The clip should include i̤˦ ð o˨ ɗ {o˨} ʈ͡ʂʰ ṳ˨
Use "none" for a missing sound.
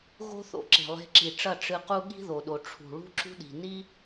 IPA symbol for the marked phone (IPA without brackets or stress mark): o˨